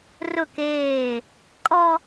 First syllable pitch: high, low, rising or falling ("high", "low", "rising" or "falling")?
falling